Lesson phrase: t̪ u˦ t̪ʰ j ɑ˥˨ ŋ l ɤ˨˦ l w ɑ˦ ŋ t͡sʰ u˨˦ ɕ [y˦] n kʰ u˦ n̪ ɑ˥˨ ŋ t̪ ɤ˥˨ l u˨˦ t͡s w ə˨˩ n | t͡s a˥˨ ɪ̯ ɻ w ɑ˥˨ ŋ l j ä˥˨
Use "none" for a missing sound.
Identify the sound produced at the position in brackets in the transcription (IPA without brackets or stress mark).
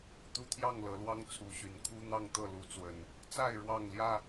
y˨˩